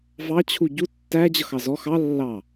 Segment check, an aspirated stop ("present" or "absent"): present